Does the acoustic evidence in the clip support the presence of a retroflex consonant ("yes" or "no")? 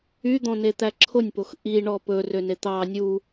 yes